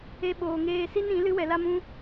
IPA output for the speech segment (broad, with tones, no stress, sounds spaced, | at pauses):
e˦ ɓ oː˧ ŋ eː˦ s i˦ n ĩ˨˦ l ɨ˦ w ɛ˧ l a˦ m ũ˦